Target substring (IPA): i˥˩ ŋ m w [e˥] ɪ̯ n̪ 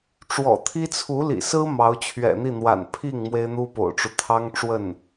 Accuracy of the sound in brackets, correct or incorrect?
correct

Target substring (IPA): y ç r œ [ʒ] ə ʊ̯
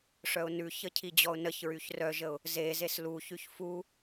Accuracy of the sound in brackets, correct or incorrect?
correct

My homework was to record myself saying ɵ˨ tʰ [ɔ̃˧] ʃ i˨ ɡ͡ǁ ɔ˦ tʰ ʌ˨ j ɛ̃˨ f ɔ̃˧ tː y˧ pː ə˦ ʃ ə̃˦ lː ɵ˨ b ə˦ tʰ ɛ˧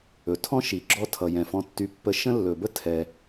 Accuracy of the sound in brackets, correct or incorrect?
incorrect: ɔ̃˦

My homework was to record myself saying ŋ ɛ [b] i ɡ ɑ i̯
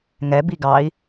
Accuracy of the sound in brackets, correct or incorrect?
correct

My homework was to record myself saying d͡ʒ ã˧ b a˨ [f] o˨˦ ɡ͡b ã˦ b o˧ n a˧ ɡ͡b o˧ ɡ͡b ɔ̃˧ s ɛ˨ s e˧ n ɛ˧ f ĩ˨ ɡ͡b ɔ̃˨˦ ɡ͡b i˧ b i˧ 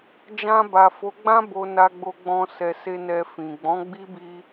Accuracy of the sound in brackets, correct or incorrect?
correct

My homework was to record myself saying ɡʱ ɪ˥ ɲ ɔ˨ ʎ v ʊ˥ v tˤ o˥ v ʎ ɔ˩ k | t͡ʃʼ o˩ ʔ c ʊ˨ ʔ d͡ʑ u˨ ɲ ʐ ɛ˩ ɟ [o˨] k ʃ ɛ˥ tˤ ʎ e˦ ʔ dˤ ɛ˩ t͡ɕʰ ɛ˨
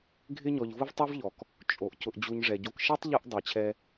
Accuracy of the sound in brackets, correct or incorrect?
correct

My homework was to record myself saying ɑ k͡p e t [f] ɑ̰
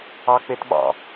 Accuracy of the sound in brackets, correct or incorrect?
incorrect: ɓ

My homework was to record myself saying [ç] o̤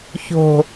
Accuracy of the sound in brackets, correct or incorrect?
correct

